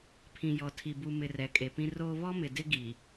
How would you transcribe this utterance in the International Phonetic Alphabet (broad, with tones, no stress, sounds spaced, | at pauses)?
pʰ ĩ˨ j ɔ˨ tʰ i˨ b u˨ m ɪ˨ r ɛ˨ kʼ e˨ p ĩ˦ r oː˦ β ɔ˦ m ɪ˨ d ɪ˦ ɡ i˨